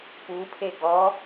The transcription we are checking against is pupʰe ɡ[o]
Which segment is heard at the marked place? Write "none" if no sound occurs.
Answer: ɔ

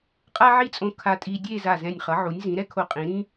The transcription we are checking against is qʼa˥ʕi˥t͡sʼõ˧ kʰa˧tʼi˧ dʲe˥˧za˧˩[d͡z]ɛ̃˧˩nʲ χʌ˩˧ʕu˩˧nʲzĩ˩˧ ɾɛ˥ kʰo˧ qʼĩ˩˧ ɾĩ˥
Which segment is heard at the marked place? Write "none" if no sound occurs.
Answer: z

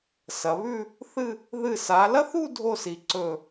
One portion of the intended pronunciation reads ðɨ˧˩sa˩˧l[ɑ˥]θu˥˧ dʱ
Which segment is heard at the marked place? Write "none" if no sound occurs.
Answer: ɐ˥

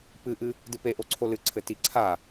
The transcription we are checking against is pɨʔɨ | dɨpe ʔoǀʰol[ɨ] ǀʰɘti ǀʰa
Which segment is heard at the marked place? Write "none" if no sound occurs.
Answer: ɨ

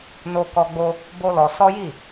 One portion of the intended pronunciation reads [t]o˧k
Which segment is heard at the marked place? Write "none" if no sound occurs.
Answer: n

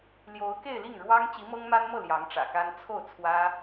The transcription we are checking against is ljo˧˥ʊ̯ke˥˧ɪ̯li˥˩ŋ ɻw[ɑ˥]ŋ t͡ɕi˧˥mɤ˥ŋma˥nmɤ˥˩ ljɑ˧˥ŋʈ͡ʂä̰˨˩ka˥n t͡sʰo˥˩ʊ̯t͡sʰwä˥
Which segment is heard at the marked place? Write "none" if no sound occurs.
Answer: ɑ˥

